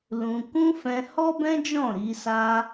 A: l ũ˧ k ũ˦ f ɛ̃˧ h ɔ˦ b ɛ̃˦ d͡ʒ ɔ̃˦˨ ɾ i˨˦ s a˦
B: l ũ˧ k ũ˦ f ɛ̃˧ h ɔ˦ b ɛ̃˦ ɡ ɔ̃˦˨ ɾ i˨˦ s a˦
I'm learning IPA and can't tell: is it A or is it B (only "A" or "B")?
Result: A